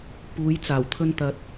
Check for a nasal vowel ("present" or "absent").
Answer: absent